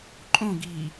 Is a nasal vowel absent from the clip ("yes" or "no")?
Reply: no